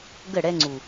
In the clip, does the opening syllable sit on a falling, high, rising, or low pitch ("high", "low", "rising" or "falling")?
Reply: falling